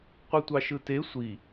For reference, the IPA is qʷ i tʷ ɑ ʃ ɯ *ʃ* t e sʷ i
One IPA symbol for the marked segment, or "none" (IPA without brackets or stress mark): none